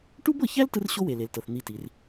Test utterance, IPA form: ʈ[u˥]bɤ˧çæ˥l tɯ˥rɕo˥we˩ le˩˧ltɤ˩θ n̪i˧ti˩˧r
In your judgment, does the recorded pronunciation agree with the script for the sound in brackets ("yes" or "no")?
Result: yes